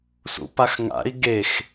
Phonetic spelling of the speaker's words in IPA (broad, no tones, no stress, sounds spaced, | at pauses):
s ṵ p a x ŋ a̰ i̯ ɡ e x